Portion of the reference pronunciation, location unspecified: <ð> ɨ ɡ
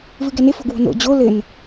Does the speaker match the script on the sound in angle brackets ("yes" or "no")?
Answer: no